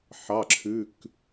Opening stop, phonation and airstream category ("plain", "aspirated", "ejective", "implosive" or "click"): click